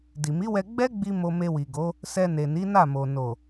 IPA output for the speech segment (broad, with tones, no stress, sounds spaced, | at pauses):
d i˨ m i˨˦ w ɛ˧ ɡ͡b ɛ˦ ɡ͡b i˧ m o˧ m e˧ w i˨ ɡ o˨˦ | s ɛ˧ n e˨ n i˨˦ n a˦˨ m o˨ n o˨